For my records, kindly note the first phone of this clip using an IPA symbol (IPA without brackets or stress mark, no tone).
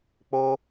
k͡p